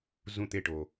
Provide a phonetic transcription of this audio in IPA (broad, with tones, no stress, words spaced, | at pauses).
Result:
zũ˥˩t̪e˥˩ʈo˩